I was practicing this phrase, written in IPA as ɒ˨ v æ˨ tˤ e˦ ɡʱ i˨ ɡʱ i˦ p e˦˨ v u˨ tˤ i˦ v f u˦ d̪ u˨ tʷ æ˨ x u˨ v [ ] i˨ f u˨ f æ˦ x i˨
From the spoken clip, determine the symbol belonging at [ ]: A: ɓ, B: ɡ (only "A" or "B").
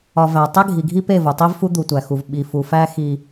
A